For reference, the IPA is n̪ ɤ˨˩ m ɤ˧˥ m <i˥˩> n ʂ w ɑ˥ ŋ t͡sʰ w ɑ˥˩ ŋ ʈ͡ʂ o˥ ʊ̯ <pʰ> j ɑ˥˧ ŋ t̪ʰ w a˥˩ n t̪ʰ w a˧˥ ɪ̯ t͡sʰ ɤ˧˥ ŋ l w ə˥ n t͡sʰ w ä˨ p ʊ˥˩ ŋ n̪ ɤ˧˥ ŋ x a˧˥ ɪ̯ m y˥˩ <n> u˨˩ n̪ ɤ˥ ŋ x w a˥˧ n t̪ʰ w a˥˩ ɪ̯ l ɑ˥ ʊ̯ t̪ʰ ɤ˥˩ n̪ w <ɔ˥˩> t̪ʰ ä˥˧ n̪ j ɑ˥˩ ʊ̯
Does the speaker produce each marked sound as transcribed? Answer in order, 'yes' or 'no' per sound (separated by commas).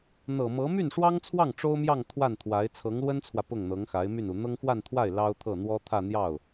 no, no, yes, no